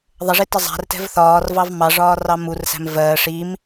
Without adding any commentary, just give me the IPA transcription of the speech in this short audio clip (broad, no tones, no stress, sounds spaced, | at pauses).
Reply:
ðˤ ə ʐ i t ɪ zˤ æ̤ r t ɛ̤ v θ ɒː r v ɑ v m ɑ ʐ ɒː r ɑ m u r s æ̤ m v ɜ ʂ i m